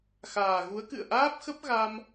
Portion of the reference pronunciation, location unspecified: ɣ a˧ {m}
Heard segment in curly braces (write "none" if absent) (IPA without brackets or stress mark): m